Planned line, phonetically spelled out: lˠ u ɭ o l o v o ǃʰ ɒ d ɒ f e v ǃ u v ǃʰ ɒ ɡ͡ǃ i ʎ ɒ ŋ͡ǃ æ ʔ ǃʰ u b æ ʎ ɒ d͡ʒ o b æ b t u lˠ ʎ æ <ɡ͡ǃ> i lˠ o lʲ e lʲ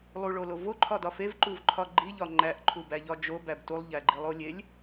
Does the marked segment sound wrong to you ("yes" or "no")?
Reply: no